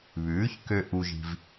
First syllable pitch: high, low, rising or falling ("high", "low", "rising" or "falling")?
rising